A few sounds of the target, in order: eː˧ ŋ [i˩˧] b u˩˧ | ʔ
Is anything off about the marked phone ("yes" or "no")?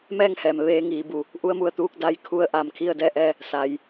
yes